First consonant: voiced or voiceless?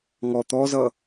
voiced